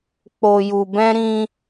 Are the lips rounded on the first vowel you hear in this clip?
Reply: yes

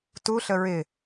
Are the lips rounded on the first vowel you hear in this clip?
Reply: yes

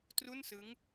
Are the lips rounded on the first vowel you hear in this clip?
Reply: yes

